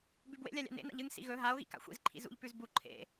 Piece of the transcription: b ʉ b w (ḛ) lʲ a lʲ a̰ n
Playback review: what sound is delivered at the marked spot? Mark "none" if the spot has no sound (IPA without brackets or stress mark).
ḛ